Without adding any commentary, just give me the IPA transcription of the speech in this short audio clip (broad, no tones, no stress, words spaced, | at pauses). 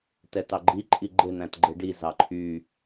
tɛtɑɡ͡ǃi ǃʼiɡ͡ǃe n̪æ̃tɡ͡ǃeɖi zɑǃʰy